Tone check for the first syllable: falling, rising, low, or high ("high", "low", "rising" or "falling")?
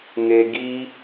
high